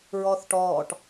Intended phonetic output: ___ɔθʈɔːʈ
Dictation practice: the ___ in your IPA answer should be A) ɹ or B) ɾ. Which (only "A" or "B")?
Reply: A